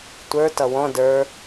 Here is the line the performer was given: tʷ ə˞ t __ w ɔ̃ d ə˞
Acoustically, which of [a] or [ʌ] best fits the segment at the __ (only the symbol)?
ʌ